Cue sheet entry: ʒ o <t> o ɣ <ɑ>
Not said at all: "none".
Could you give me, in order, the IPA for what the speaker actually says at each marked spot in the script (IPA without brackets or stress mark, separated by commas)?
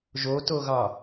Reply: t, ɑ